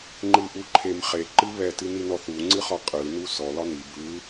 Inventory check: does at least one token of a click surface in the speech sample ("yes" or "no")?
yes